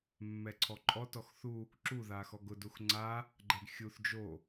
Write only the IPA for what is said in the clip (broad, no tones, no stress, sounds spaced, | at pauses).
mː ɛ ǀʰ ɔ ǃʼ ɔ t ɔ x θ u | ǁ u ð a x ɔ ɡ ʊ d u x ŋ͡ǀ a | ɡ͡ǃ ɛ ɡ xʲ u θ d͡ʒ o